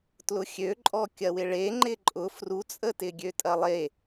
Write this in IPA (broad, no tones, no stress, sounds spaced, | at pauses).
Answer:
t l ʊ xʲ ø ǃʼ ɔ kʲ ɐ w ɪ ɭ e ŋ͡ǃ ɪ ǃʼ ʊ f r u t͡sʼ ə t ɪ ɡʲ ø tʼ ɐ lˠ e